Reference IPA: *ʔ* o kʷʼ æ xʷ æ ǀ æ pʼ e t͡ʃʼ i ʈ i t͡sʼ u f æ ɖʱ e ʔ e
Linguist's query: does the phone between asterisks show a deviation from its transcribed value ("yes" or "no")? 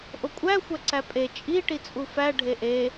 no